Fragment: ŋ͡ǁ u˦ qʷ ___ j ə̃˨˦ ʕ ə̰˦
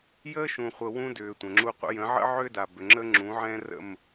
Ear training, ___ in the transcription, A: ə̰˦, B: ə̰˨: A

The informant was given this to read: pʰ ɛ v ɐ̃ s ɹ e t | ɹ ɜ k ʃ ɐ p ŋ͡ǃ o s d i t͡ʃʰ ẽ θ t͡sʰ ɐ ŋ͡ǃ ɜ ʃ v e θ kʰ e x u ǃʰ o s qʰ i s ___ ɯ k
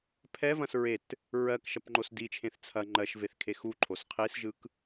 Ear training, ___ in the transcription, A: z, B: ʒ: B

